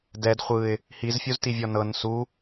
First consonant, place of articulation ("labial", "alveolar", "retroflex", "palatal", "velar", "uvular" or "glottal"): alveolar